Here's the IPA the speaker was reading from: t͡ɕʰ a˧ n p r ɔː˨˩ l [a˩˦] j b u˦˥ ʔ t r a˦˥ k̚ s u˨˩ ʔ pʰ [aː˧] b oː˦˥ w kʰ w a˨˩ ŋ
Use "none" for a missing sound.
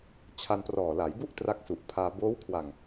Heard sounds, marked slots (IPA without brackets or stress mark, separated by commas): a˩˦, aː˧